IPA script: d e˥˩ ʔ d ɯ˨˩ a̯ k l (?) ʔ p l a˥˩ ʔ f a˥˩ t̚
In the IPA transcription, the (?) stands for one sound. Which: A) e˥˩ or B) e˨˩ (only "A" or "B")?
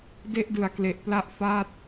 B